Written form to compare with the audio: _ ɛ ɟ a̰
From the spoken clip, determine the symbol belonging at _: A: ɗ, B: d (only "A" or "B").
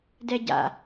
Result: B